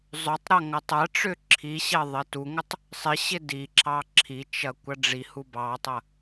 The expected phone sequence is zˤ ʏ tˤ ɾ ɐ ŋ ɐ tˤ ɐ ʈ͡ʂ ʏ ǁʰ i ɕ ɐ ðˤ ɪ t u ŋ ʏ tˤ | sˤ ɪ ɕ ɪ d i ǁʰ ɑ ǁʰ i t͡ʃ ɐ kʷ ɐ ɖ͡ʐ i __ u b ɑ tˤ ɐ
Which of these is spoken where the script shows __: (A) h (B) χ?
A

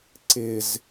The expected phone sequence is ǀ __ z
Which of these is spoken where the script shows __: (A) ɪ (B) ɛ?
A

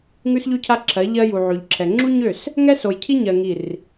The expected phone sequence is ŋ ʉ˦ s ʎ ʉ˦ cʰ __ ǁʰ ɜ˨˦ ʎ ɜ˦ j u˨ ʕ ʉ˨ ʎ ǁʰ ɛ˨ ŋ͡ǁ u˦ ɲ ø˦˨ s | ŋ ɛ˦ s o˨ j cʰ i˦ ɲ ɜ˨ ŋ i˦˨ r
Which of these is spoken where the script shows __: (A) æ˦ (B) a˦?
B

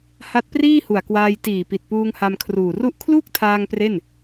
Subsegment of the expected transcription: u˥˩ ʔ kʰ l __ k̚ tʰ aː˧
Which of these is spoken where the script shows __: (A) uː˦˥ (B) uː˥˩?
B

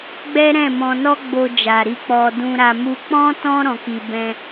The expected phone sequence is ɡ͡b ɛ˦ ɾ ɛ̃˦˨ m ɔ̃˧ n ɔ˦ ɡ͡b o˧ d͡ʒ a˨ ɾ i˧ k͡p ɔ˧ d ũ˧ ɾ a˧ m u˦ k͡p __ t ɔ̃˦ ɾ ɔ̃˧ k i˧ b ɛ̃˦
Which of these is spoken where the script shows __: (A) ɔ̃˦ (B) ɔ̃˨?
A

